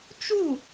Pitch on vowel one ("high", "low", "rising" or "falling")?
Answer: falling